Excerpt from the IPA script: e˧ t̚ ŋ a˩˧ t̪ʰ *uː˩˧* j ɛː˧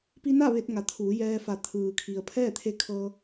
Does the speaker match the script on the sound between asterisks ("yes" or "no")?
yes